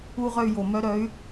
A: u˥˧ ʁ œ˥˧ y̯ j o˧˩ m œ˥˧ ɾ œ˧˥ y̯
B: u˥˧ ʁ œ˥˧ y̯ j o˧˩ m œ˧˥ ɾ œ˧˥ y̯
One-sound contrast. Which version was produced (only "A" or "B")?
B